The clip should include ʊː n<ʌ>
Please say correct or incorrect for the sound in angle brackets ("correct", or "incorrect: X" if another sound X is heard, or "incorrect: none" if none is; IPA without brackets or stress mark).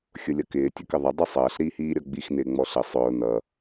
correct